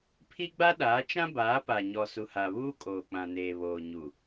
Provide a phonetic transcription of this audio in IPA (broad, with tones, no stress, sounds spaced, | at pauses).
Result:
pʰ i˦ ɡ͡b a˦ ɗ aː˨˦ t͡ʃ ã˦ b aː˨˦ p a˨ ɲ ɔ˨ s u˨ h a˨ β uː˦ kʼ oː˨ k͡p ã˨ n eː˨ β oː˨ ɲ u˨